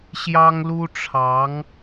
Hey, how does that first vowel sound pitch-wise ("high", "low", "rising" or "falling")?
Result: high